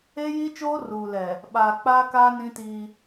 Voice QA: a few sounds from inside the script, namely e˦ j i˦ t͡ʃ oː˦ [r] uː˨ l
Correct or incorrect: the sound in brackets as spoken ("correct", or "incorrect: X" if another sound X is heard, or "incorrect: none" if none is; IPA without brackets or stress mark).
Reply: correct